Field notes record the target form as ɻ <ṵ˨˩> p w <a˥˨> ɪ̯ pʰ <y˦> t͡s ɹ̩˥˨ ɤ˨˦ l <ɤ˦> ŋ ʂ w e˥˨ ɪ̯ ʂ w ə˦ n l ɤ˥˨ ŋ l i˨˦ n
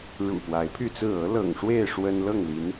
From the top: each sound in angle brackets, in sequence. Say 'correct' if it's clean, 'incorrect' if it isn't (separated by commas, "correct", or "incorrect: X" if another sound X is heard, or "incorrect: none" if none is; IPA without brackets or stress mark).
correct, incorrect: a˨˦, incorrect: y˥˨, incorrect: ɤ̰˨˩